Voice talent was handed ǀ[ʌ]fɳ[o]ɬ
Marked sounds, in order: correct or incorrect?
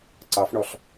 incorrect: ɑ, incorrect: ɔ

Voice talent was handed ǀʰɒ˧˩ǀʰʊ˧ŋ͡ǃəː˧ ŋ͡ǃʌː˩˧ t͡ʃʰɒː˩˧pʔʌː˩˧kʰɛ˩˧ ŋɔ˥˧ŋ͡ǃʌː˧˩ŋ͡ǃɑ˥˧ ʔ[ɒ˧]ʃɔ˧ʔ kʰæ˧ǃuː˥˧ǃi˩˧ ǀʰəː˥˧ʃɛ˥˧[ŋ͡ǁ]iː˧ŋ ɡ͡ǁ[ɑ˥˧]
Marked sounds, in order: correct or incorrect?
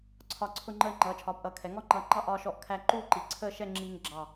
incorrect: ɒː˧, correct, incorrect: ɑ˧˩

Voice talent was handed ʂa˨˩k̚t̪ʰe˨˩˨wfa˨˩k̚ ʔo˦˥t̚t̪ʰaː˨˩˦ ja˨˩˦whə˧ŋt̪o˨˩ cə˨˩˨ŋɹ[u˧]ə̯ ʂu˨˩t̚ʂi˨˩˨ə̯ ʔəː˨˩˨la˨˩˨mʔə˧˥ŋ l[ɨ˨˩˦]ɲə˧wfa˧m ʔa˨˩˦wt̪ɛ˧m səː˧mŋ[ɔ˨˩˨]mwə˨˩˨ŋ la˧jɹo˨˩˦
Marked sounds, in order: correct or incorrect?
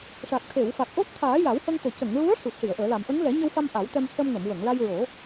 incorrect: u˧˥, incorrect: ɛ˨˩˦, incorrect: ə˨˩˨

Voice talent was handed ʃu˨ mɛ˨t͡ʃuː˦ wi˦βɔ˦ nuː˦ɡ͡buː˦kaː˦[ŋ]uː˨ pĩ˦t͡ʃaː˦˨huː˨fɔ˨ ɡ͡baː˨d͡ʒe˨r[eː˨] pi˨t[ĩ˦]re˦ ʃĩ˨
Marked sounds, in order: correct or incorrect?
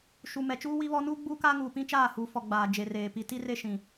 correct, correct, incorrect: i˦

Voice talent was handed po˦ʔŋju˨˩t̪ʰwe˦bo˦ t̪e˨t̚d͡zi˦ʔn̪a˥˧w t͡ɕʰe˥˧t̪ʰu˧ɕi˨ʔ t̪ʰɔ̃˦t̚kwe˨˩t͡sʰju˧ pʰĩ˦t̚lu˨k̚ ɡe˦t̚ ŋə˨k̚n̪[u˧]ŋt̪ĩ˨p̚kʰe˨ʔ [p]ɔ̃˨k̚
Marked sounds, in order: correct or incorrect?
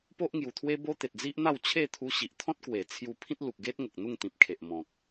incorrect: u˥˧, incorrect: m

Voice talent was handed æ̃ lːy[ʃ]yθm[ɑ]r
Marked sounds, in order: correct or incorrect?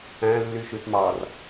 correct, correct

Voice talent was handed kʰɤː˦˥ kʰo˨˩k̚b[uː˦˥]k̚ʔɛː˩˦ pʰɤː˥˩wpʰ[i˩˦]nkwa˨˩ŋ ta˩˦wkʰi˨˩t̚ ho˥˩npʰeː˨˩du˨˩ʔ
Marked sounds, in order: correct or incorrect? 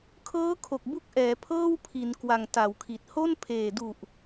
incorrect: u˦˥, correct

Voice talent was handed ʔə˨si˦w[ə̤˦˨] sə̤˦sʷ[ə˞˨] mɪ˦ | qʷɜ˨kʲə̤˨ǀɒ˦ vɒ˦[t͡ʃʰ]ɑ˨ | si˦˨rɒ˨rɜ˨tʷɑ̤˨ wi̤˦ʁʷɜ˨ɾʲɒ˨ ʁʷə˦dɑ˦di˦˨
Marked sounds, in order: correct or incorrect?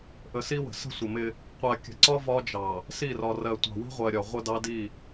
incorrect: ə̤˨, incorrect: ə˨, incorrect: d͡ʒ

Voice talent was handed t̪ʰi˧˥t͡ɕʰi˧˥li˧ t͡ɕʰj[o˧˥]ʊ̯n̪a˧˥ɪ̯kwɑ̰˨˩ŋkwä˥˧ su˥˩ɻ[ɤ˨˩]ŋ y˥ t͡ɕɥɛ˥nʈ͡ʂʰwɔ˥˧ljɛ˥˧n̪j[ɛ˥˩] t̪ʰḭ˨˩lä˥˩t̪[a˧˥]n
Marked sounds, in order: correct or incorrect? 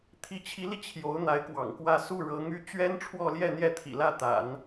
correct, incorrect: ɤ˧˥, correct, incorrect: a̰˨˩˦

